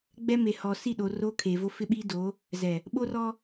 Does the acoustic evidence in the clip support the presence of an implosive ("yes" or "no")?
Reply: yes